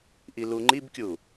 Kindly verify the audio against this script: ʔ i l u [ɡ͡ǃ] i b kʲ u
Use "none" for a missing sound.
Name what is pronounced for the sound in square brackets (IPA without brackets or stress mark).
ŋ͡ǃ